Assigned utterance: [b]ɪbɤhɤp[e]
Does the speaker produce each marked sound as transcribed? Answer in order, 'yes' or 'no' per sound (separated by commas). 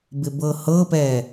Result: yes, no